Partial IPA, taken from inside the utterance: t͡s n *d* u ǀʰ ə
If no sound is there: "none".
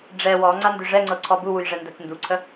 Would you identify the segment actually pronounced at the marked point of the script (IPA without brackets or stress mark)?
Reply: d